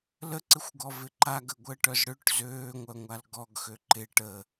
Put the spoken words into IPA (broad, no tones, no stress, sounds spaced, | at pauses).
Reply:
l ə ǀ ɪ xʷ ɡ ɔ v ɪ ǃ a ɡ ə ɡʷ əː ʈ œ z ɽ ø ʈ z øː ŋʷ œ ŋʷ a l ɡ ɔ ɡ x ø ǃ ɪ ʈ ə